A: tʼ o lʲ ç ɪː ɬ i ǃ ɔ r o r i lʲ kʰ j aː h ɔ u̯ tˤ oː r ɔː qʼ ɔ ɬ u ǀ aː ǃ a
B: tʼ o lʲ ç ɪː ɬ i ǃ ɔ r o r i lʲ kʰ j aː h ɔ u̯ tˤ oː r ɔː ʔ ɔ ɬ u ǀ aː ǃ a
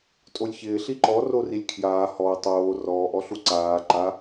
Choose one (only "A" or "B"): B